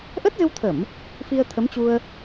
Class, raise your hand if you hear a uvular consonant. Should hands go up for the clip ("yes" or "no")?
no